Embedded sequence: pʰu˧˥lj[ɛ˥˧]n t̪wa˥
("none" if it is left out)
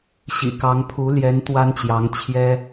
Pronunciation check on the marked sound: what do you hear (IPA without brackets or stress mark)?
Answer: ɛ˧˥